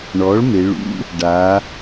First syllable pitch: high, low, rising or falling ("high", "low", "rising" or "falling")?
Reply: rising